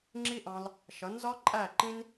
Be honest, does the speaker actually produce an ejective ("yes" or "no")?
yes